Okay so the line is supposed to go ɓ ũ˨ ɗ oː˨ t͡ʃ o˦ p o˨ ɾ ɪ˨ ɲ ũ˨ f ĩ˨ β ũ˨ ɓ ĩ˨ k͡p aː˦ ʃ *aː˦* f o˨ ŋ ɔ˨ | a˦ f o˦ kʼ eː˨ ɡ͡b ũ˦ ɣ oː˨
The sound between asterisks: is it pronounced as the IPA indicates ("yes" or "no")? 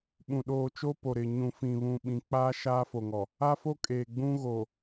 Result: yes